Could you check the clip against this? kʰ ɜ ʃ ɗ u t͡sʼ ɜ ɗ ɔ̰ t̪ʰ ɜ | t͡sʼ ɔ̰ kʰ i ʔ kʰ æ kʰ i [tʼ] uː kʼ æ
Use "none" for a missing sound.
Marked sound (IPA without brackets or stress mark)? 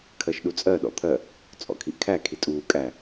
tʼ